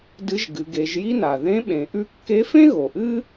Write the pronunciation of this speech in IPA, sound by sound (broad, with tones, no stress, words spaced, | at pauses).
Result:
dɨ˧˥ʒɡɨ˩˧ɡe˩˧ʒji˥ na˩ ðẽ˧˥ ɓẽ˩˧ ʔʉ˥ kːe˧˥fẽ˥ ɣo˩ʔɨ˥